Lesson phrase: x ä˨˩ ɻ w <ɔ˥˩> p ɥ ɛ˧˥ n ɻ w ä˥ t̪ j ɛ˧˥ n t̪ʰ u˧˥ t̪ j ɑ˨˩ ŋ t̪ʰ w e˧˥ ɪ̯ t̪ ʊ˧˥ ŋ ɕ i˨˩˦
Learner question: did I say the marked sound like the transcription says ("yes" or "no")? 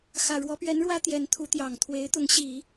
no